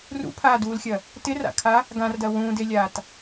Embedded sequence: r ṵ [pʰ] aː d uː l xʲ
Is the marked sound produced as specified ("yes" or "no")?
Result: yes